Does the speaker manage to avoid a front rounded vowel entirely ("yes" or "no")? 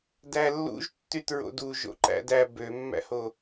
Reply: no